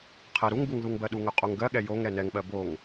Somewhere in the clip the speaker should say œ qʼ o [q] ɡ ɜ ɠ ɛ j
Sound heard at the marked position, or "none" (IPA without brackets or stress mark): ŋ